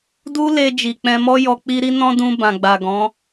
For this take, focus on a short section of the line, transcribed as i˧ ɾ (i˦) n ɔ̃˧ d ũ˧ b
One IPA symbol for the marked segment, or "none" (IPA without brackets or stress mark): i˧